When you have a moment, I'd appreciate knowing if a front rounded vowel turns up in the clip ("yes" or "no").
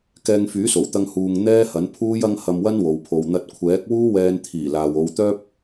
yes